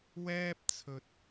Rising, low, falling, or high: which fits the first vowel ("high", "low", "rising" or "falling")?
high